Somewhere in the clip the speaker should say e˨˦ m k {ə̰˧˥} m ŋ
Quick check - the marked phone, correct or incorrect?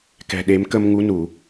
incorrect